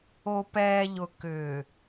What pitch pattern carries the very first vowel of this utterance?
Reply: low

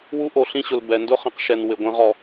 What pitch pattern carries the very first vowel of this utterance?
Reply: high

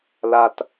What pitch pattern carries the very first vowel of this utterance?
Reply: low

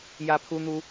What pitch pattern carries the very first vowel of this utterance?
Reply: high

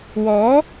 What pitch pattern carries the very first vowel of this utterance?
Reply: rising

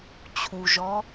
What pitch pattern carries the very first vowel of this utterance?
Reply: low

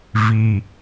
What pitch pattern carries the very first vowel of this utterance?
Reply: low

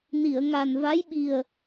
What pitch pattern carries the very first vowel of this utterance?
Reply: low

